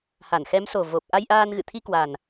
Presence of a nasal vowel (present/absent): absent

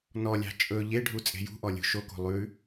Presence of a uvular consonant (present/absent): absent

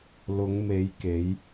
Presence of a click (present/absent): absent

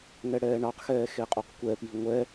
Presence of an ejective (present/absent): present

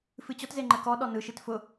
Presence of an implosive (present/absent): present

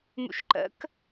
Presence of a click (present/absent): present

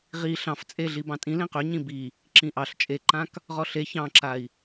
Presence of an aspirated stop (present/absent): absent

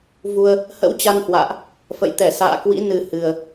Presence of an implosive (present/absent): absent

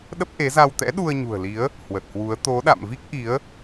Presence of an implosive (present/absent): present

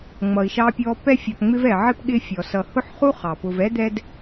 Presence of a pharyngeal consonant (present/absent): present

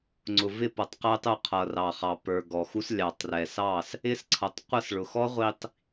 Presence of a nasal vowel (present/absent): absent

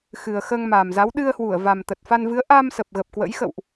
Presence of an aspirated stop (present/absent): absent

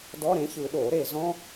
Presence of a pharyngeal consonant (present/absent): absent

